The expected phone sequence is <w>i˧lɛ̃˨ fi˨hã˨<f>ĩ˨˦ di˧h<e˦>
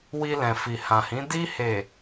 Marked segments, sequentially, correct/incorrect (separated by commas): correct, incorrect, incorrect